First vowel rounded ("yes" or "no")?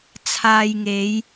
no